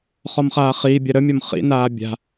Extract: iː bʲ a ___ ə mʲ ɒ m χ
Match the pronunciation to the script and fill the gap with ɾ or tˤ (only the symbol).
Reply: ɾ